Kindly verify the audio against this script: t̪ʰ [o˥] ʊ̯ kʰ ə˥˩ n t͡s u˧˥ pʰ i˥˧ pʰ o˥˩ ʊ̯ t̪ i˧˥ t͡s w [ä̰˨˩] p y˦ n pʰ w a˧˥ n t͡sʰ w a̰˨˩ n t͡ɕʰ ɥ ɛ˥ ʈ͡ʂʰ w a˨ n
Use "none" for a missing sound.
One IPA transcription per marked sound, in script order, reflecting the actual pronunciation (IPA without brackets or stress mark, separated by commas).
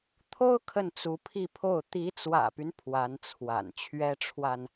o˥, ä̰˨˩